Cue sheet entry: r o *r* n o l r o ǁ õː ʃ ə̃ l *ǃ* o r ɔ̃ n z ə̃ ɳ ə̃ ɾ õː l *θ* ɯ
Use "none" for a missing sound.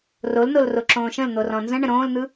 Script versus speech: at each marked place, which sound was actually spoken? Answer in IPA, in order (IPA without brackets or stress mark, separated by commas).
l, n̪, n̪